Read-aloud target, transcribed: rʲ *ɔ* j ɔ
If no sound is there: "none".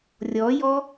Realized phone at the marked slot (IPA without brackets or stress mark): ɔ